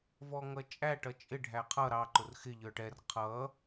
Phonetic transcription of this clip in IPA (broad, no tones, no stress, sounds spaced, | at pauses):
v ɔ ŋ ʌ t͡ʃʼ æ ʈ ʌ t͡ʃʼ ɪ ɖʱ æ qʰ ʌ ɾ ɑ ǃ ʊ r x ɪ ʎ ə˞ ʈ ɛ r qʰ ʌ